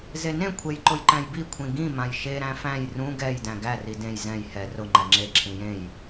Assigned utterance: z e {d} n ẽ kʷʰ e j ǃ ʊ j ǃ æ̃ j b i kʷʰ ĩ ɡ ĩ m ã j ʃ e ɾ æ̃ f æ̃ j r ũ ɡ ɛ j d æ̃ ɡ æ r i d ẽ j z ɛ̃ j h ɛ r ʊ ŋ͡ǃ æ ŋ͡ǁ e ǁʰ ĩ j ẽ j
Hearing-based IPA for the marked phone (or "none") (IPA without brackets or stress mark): none